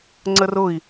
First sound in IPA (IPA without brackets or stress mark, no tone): ŋ͡ǀ